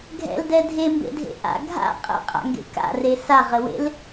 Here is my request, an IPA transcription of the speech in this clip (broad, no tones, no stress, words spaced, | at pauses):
ɡʱɛ̰ldɛ dʱembḛdʱḛ ʔa̰ ɡʱa̰ qʼɛ̰qʼa̰ŋɡḛ ka̰re saʁəwḛl